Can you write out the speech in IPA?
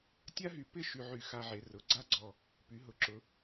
tʲ a˥ ɦ y˧ p ɪ˥˧ ʃ y˧ ʕ y˧˩ x a˧ ʕ e˩˧ r ʊ˩˧ ɡ͡ǀ a˥ ɡ͡ǀ ɔ˧˩ | p y˩˧ ɦ ʊ˩˧ ǁ ʊ˩˧

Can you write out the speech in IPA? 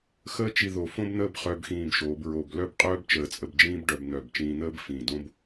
x əː˥ t͡ʃ i˧ ð o˧˩ f õ˥ b n̪ əː˥˧ b χ œ˧ b x ĩː˧˩ b ʃ oː˩˧ b ɹ o˧˩ b l œ˥˧ b qʼ œː˥ b t͡ʃ əː˧˩ t͡sʼ ə˧ b d͡ʒ ĩː˥ b ɖ œ˧ b n̪ œ˧˩ b t͡ʃ ĩː˧ n̪ əː˥ b f ĩː˧˩ d õ˥ b

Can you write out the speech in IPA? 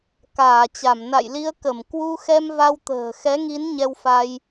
k aː˧˩ t͡ɕ a˧˩ m n a̰˧˨ j l i˧ ə̯ k ə˧˩ m k w u˧ x ɛ˧ m v a˧ w t̪ ə̤ː˨˩ x ɛ˨˦ ŋ i˨˦ n ɲ ɛ˧ w f a˧ j

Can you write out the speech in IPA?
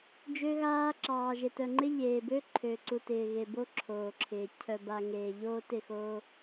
d͡ʒ ø˦ ɣ aː˦ ǁ ɑː˨ ʒ e˨ t œ˨ ŋ͡ǃ ɪ˦ ʎ eː˨ b ø˦ ǃʰ ø˨ ǀ u˨ t ɪː˨ ɣ e˨ b o˦ ǁʰ oː˨ ǁʰ ɪː˨ cʰ œ˨ b a˨ ŋ eː˨ ʎ oː˦ t ɪ˦˨ x oː˦

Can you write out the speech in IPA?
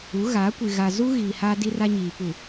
u˨˦ ɣ aː˨˦ kʷ i˨ ɣ a˨ z u˦ ɣ iː˨ h aː˦ d i˦ r a˦ ɲ iː˨ p u˨

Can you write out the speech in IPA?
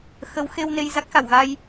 x ə˨˦ w x e˧ w n e˧ j z a˦˥ k̚ x a˧˩ w ɣ a˧ j

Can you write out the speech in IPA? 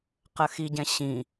q ə x i ɟ ɛ̃ ɕ ĩ

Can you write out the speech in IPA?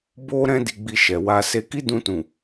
b o˦ ɾ ɛ̃˦ d i˧ ɡ͡b i˧ ʃ ɛ˨ w a˧ s e˧ k i˦ d ũ˧ t ũ˨

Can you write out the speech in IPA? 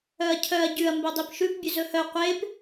œ ɐ̯ cʰ œ ɐ̯ ɟ ʉ ɐ̯ m b œ dˤ e p ʃ ʉ p bʲ ʉ z ɵ h œ qʷ e p

